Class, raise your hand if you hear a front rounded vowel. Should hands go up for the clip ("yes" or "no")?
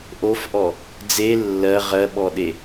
no